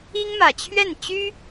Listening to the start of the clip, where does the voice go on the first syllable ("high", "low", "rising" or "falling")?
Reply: high